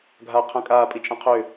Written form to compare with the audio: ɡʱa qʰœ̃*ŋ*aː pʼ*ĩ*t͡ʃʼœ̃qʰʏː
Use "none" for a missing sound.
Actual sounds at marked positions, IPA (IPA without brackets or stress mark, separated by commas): kʼ, i